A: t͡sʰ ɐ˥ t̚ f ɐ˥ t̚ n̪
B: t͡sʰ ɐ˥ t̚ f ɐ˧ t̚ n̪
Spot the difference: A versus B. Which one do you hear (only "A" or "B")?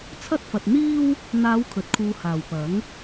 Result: B